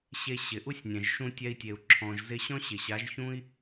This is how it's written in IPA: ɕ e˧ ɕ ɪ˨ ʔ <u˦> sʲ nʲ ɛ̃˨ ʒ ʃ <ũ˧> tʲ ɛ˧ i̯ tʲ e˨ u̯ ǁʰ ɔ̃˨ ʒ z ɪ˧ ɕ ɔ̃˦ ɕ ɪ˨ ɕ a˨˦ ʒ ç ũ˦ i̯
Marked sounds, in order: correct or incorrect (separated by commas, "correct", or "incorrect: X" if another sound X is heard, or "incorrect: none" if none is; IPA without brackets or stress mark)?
correct, correct